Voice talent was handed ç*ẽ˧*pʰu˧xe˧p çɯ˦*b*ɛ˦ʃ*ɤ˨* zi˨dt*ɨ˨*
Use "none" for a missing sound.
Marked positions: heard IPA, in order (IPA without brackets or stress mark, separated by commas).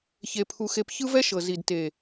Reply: e˧, v, ɤ˨, e˨